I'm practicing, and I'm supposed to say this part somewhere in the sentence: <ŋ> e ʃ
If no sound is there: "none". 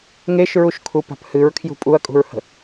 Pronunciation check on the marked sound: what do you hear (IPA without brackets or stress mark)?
ŋ